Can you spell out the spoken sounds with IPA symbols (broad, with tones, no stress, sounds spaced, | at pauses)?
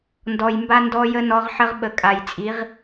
n d ɔ˨ j m b a˦ n d ɔ˦ j ə˦ n ɔ˦ ʁ ħ ə˦ ʁ ɓ ə˨ kʼ a˨ j t͡sʼ i˨˦ ʁ